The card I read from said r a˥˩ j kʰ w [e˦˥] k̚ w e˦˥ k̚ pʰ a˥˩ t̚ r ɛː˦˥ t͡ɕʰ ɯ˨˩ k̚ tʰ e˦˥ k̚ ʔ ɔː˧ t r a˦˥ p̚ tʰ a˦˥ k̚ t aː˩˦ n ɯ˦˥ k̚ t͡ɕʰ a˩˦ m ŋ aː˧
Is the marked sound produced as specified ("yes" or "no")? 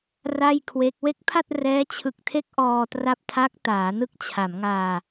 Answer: yes